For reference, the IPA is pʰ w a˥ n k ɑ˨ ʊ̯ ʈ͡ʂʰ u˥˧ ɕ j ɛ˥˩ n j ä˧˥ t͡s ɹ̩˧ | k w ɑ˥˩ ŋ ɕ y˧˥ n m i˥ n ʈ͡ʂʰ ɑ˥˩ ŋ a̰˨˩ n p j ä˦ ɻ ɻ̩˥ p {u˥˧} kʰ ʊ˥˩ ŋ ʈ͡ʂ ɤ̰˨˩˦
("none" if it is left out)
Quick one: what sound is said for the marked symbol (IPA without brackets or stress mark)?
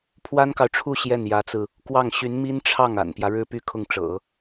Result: y˥˧